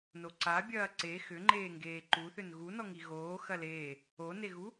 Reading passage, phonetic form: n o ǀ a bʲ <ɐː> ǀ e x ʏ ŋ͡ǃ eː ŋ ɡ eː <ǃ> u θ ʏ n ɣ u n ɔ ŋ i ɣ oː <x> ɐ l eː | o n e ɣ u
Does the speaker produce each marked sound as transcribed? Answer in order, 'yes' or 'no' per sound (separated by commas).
yes, yes, yes